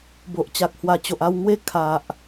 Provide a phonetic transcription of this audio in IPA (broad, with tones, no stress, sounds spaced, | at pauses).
b o˨ ʔ t͡ɕ a˨ k̚ h w a˨˩ t͡ɕ o˨ ʔ a˧ w ŋ w e˦ kʰ a˨ ʔ